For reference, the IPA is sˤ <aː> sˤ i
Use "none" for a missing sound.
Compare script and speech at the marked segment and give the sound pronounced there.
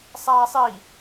aː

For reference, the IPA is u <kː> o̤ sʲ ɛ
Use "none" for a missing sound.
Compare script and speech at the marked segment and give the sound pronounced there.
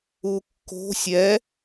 kː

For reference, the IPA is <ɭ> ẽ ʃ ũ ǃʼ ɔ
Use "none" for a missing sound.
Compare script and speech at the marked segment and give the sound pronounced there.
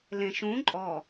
l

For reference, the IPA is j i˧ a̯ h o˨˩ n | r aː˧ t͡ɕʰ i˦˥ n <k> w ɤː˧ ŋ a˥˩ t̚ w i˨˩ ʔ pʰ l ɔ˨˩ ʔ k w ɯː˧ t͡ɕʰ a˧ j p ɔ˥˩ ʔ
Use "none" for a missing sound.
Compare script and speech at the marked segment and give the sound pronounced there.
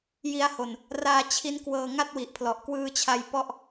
k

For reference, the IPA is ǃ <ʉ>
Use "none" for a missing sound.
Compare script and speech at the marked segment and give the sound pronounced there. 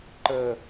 ə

